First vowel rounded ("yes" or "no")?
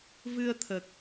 no